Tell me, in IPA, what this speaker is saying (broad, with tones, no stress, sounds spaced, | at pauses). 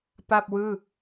p a˥˩ p̚ w ɯː˥˩